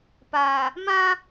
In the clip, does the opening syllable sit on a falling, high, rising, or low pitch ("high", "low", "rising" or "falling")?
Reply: low